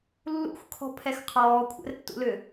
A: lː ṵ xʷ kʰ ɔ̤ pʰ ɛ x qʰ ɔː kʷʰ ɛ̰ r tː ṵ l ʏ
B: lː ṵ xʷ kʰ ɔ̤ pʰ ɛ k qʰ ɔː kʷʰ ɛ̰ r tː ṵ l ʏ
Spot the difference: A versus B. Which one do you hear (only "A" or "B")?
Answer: A